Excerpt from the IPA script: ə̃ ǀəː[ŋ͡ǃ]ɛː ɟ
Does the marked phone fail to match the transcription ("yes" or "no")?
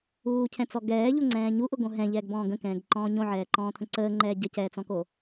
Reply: no